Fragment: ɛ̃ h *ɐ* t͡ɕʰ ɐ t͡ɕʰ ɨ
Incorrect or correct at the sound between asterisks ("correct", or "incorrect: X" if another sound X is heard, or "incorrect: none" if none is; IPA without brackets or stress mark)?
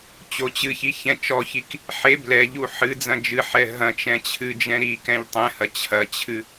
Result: correct